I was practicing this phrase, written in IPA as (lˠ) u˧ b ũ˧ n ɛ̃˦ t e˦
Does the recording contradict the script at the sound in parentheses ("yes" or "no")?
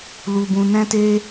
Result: yes